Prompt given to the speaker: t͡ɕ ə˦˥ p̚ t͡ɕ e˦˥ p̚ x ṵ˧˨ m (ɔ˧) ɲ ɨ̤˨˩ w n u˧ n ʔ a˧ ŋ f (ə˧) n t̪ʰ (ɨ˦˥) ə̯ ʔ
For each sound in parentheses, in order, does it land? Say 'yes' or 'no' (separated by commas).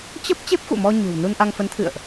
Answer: yes, no, no